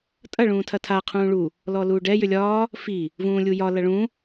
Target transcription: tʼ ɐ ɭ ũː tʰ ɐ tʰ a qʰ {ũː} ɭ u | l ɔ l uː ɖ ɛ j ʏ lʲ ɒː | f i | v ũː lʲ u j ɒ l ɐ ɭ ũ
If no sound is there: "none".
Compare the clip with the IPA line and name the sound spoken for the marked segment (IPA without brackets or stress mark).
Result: ũː